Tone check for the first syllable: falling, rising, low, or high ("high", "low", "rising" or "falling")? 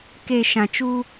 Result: low